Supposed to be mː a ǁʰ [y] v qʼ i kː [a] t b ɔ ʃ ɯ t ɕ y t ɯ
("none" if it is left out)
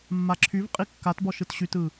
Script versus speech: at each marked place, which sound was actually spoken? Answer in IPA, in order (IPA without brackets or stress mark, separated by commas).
y, a